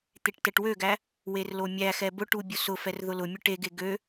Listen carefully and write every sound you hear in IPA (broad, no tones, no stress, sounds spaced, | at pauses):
t̪ e ʈ t ɛ ʈ w ø ɡ æ | w e r l o mʲ æ x ɛ b ʊ ʈ u bʲ ʊ s ʊ f ɛ r ð ʊ l ʊ mʲ ʊ ʈ e ɡ e ɡ ø